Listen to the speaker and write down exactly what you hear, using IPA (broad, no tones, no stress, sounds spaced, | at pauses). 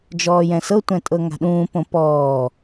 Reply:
d͡ʒ ɔː j ɛ̃ s ɤ tʷ ɛ̃ tʼ ɤ ŋ a̤ ɗ ũː p õ p ɔː